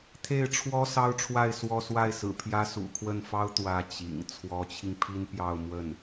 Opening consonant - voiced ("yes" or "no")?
no